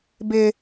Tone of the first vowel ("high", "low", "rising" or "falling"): high